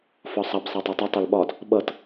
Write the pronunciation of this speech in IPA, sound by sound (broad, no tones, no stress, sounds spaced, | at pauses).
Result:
f ɒ sˤ ʌ b sˤ æ tˤ æ tˤ ʌ tˤ ʌ l ɓ ɒ d | ɓ ʌ t